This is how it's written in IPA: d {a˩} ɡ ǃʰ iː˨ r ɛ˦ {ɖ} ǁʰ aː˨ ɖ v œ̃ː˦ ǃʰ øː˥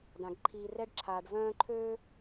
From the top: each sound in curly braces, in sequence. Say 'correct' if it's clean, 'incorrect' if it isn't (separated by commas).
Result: incorrect, correct